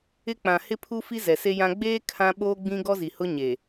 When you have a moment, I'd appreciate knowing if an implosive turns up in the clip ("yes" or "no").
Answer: yes